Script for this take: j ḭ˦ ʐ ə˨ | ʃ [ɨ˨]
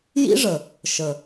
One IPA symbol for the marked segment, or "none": ə˨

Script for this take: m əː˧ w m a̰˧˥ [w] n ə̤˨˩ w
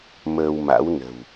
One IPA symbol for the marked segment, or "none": w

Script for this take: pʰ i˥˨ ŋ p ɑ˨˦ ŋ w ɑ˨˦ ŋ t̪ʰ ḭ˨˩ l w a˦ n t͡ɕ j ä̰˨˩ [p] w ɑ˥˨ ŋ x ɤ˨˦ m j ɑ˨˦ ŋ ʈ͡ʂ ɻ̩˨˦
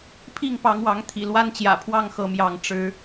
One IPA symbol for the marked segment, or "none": pʰ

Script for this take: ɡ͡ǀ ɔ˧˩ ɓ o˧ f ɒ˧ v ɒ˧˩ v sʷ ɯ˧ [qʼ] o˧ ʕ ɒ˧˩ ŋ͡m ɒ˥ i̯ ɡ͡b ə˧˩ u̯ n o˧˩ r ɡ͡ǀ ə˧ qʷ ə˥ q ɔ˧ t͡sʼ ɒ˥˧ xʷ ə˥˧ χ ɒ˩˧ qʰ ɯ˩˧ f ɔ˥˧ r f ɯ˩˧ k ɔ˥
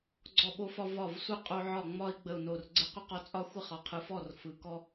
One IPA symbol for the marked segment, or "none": qʼ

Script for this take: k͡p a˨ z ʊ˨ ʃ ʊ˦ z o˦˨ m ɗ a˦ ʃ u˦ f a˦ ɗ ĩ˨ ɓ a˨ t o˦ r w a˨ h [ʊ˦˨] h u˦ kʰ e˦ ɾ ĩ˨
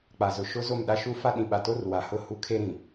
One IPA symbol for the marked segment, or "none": ʊ˦˨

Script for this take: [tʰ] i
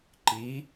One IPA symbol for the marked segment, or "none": ǃ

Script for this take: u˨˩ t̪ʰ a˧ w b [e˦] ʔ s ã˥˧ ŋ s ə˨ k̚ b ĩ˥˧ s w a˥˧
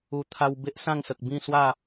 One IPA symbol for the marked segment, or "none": e˦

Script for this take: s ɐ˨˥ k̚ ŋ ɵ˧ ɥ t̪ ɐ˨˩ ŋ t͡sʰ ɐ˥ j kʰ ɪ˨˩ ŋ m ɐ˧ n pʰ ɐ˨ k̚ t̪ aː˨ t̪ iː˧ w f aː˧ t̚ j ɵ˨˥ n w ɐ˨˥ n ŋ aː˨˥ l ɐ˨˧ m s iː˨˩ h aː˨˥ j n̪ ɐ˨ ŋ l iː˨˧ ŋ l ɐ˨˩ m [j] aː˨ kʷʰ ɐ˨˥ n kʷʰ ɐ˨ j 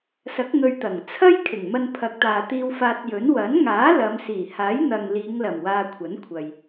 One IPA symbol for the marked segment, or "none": w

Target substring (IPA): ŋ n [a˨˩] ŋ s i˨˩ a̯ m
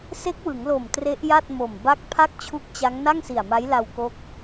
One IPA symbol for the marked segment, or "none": a˥˩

